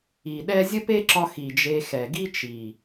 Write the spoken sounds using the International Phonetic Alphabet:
i˨ ɗ ɛ˦ zʲ ə˦ p e˦ ǁ ɒ˧ x i˨ d͡ʒ e˧ x ɛ˨ ɡ i˦ t͡ʃ i˨

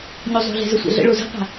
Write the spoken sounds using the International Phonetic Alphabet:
ɲ o zˤ o̤ ɮ ɛ̤ z ə sʷ ɛ̰ ɮ ə̰ ɭ o z ə̤ qʷ a̤

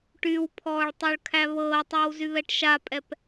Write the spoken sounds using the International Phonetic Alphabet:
ʈ y w pʰ ɔː ɭ tˤ o ɭ kʰ æ β ɤː tˤ a w z y β ɛ ʈ ʃ a pʼ ɛ p

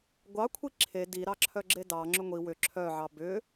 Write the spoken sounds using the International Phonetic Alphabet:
ɡʷ ɑ kʷʰ i ǁʰ e d i ɾ ɑ ǁʰ œ ɡ͡ǁ e d ɑ ŋ͡ǁ ʏ ŋʷ i w ʏ ǁʰ œ ʕ ɑ b ʏ

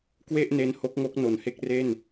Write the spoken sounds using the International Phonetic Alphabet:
k w e˥˩ ʔ n e˦˥ n h o˦˥ k̚ ŋ o˦˥ k̚ n o˩˦ n h e˦˥ k̚ r e˥˩ n

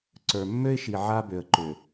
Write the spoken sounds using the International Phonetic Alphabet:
ǀ ə˞˨ mː ø˦ ɪ̯ ʃ i˨ ʕ a˦ b ø˨ ə̯ ǃ ø˨

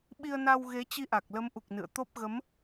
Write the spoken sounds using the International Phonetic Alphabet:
ɓ i˧ ə̯ n a˧ w ɣ e˨˦ t͡ɕ i˧ ʔ a˨˩ k̚ l ə˨˦ m ʔ u˨˩ k̚ n ɨ̰˧˨ ə̯ t̪ o˦˥ p̚ ɣ ə˨˦ m

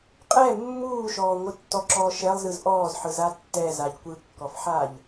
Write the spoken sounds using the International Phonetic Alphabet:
qʼ ɛ mː uː ʃ ɔː ŋʷ ɯ tː ɔ ǁ ɔː ʃ ɛ lˠ z ɯ z ʔ ɔː z ħ ɯ z a tː ɛ z a ʎ kʷ ɯ kː ɔ f ħ a ʎ

